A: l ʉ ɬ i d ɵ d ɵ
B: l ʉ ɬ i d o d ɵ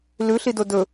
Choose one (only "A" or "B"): B